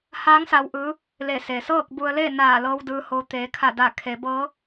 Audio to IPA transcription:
h aː˧˥ ŋ s a˧ w ʔ ɯː˧˥ | l e˧˩ s e˩ s ɤː˥˨ k̚ b u˧ ə̯ l e˥˨ n aː˧˩ l ɤː˧ w d ɯː˧ h o˧ t̪ eː˩˧ kʰ a˧˩ d a˧˩ kʰ e˩˧ b ɤː˧˥

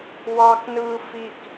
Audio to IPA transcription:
w ɑ k n ɯː f i k

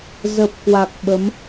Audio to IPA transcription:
z ə˨˩ p̚ k w a˨˩ k̚ ɓ ə˨˦ m

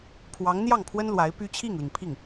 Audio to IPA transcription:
pʰ w ɑ˧˥ ŋ n̪ j ɑ˥˩ ŋ pʰ w ə˥ n l w a˧˥ ɪ̯ p y˥ t͡ɕʰ i˥˩ ŋ l i˩ ŋ pʰ i˥˩ ŋ

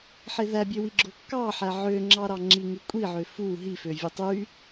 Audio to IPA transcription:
ħ e ð æ bʲ ø w i ɡ͡ǁ o kː ɑ ħ æ ʕ ø ŋ͡ǁ ɑ ɾ ɑ ŋ͡ǁ i ŋ y kʷʼ i ʕ ø f u ɦ i f ø vʲ e tˤ y

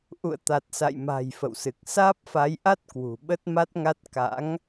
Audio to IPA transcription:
ʔ ṵ˧˨ ə̯ t̪ a˨˩ t̚ s a̰˧˨ j m a̤˨˩ j f ə̰˧˨ w s ɨ˨˩ k̚ s aː˦˥ p̚ f a˨˦ j ʔ a˦˥ t̚ k w ṳ˨˩ ɓ ə˦˥ t̚ m a˦˥ t̚ ŋ a˦˥ t̚ k a̰˧˥ ŋ

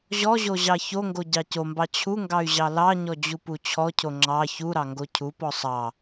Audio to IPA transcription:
ʑ ɔ ʑ o ʑ ɑ ç o ŋ ɡ o ɟ ɑ c o m b ɑ t͡ɕʰ u ŋ ɡ ɑ y̯ ʑ ɑ l ɑ ɲ ɔ d͡ʑ u p u t͡ɕʰ ɔ cʰ o ŋ͡ǁ ɑ ç u ɾ ɑ ŋ ɡ o cʰ u p ɔ sˤ ɑ

